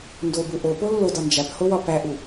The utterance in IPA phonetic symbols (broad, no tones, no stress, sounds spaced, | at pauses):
n d o b u ʔ o p o lː o d ɒ n d͡ʒ æ p h o w ɒ p æ ʔ u